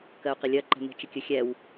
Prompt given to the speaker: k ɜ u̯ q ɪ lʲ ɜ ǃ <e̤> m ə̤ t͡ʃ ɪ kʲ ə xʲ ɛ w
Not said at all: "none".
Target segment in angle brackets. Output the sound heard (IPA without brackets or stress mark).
ɛ̤